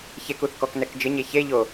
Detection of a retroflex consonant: absent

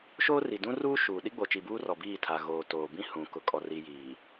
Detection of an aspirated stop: present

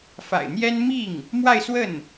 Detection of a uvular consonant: absent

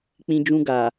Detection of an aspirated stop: absent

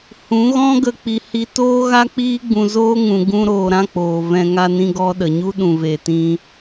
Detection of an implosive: present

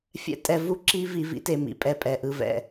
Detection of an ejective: present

